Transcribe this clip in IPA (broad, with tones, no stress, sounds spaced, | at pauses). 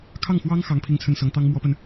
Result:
kʰ ɑ˥˩ ŋ x w ɑ˥ ŋ x ɑ˥ ŋ pʰ i˥ ŋ t͡sʰ ə˥˩ n s ɤ˧˥ ŋ t̪ ɑ˥ ŋ m w ɔ˥ p ə˨ n